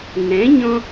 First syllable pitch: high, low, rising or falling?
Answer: rising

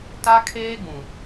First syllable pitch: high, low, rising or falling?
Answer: high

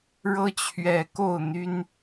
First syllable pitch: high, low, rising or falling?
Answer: high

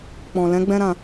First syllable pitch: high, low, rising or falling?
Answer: low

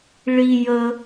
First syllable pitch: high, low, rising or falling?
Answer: high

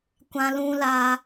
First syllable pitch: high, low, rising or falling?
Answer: high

